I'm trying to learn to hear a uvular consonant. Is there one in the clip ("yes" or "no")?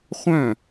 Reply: yes